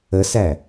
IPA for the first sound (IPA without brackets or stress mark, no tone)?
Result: ə